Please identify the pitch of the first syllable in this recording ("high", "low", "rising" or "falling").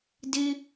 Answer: high